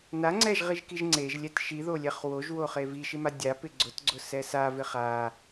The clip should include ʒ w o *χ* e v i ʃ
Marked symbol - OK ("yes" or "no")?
yes